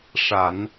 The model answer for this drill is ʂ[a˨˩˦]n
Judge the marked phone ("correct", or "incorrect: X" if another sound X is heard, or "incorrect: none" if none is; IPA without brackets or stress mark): correct